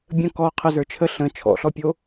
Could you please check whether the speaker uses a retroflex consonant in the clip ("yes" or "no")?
no